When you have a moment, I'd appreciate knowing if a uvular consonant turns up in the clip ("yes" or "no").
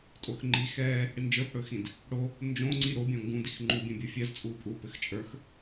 no